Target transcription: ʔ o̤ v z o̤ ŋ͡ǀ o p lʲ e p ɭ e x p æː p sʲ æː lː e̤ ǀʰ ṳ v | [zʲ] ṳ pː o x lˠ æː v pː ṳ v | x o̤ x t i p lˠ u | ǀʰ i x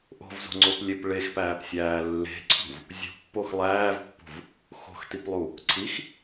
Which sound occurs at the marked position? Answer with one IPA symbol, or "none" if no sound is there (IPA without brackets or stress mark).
zʲ